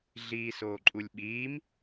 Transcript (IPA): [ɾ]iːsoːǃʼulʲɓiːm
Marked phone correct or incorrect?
incorrect